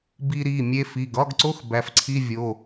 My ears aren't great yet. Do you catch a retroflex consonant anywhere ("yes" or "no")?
no